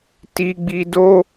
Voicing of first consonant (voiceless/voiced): voiceless